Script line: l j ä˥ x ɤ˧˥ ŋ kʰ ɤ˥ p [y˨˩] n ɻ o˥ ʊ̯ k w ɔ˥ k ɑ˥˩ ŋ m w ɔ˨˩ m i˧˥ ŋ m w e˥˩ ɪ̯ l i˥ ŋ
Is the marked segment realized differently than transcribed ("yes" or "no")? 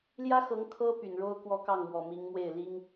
no